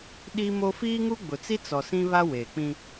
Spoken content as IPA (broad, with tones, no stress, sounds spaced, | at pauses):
ɗ i˦ m o˦ f iː˦ ŋ u˦ ɡ͡b ʊ˨ t͡s i˦ t͡s ɔ˨ s ĩ˦ β a˦ w eː˨ k͡p ĩ˦